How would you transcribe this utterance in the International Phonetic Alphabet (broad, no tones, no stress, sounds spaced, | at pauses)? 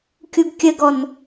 kʲ u ɡ kʲ ə ɡ ɔ n